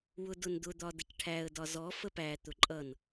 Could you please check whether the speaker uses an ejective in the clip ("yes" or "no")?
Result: yes